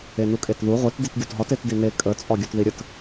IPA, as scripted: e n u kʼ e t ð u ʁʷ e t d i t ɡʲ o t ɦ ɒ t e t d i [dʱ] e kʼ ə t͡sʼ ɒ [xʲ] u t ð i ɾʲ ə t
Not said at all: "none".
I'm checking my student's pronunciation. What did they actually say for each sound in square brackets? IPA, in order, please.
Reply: n, ɡʲ

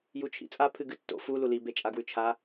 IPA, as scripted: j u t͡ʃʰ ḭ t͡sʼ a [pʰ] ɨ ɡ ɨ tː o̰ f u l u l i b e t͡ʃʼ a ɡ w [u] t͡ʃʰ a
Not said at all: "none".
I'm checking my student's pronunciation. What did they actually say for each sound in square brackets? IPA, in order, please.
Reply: pʰ, ʉ

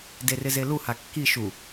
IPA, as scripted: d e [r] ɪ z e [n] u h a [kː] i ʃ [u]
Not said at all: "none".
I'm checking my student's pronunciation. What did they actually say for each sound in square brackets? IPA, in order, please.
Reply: r, l, kː, u

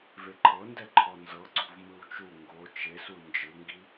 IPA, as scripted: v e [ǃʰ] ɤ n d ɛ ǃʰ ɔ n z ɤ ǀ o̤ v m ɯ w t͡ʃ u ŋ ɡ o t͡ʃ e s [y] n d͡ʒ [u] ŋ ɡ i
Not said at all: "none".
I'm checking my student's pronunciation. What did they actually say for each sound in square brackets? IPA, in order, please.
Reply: ǃʰ, u, ɯ

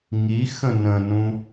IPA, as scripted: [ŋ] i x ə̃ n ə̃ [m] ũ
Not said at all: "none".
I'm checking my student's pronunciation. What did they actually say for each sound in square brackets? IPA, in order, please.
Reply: ŋ, n

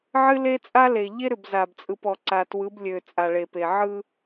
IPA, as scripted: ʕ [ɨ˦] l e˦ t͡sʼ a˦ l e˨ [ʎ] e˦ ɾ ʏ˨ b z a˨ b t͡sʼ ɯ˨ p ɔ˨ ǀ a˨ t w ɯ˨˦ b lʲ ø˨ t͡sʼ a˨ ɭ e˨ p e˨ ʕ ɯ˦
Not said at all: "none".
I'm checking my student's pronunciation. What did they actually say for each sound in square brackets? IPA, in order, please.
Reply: ɨ˦, ʎ

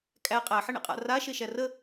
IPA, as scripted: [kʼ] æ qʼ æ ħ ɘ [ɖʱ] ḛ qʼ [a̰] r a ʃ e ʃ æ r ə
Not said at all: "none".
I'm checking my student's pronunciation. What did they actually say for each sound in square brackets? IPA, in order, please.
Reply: kʼ, ɳ, a̰

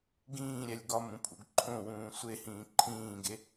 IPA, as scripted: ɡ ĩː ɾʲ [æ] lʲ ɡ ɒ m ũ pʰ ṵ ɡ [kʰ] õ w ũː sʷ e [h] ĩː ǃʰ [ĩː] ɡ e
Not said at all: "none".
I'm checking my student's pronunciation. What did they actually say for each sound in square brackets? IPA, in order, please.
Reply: æ, ǃʰ, h, ĩː

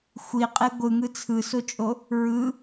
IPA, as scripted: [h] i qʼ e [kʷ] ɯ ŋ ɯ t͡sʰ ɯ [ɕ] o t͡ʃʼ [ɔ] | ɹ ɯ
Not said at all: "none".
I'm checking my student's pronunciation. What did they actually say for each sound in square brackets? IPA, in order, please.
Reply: xʷ, ɡʷ, s, o

